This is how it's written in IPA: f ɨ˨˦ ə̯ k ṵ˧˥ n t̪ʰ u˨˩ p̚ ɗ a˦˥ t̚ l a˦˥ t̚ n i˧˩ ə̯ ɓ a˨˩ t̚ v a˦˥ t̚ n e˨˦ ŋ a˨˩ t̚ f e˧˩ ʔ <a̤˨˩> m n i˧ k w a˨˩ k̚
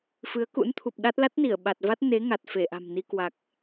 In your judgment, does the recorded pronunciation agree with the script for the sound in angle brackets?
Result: yes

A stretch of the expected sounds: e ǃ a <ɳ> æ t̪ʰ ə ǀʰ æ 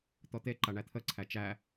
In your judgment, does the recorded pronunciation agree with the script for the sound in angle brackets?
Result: yes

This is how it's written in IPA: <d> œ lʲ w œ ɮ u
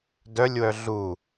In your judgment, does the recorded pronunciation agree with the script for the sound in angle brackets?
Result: yes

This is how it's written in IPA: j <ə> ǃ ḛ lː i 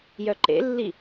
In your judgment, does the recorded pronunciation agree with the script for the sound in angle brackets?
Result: no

